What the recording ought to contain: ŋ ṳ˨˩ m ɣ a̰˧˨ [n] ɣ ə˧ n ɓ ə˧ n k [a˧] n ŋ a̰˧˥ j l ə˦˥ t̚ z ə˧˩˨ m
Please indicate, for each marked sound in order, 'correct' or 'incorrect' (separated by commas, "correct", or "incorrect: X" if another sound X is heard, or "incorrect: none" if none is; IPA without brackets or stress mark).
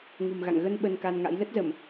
incorrect: ŋ, correct